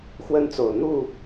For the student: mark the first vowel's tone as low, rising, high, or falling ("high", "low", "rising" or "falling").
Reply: high